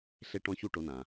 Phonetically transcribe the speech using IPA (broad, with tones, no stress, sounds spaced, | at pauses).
ɬ e˥ ʈ ɔ̃˥ ç u˥ ʈ o˧˥ n ã˩